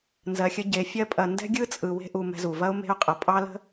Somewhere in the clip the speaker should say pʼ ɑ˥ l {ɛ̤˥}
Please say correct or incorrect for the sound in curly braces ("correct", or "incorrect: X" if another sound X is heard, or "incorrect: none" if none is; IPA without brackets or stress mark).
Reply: incorrect: ə̤˥